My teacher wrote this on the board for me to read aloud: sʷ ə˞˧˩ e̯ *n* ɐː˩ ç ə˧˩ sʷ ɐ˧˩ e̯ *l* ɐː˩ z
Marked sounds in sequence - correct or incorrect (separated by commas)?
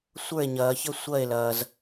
incorrect, correct